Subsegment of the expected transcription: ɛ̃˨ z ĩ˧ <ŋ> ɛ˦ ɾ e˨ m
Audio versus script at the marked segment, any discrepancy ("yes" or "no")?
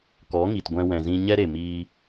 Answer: yes